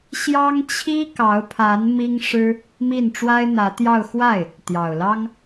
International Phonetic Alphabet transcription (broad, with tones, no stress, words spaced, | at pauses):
ɕjɑ˥ŋt͡ɕʰi˥kɑ˧˥ʊ̯pʰa˧˥n mi˥ŋʂɻ̩˥ | mi˥˩n ʈ͡ʂwa˥ɪ̯n̪ä˧˥t̪jɑ˥˧ʊ̯ xwa˥˩ɪ̯ | t̪jɑ˨˩ʊ̯lɑ˥ŋ